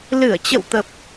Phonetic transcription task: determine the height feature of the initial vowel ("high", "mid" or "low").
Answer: high